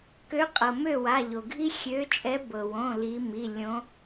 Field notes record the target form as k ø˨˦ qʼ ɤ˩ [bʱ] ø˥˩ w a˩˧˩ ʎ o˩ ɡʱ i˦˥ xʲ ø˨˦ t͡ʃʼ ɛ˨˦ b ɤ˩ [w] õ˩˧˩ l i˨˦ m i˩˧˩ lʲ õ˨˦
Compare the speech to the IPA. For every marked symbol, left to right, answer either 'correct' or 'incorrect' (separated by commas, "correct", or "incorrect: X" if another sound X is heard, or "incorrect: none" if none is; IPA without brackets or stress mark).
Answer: incorrect: m, correct